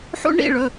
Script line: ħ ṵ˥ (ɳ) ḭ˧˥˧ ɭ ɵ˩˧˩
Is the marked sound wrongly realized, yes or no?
no